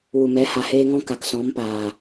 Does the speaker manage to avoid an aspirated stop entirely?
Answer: yes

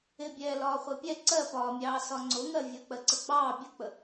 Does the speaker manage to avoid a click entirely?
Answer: no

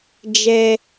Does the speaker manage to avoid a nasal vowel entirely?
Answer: yes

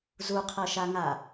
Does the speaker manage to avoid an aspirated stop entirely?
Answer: no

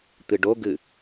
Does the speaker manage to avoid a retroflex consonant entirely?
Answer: no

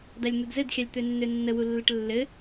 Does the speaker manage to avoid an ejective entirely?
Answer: yes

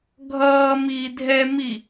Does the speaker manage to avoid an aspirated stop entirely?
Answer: yes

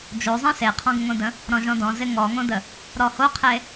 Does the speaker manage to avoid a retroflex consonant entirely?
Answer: yes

